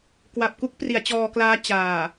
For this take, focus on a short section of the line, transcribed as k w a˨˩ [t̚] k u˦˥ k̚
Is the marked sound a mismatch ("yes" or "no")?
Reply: yes